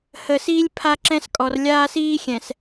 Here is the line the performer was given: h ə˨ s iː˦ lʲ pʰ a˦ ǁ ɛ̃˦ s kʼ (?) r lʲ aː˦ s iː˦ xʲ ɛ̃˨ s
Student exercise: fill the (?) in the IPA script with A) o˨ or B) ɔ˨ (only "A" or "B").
B